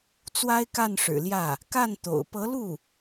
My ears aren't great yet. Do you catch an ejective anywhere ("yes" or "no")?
no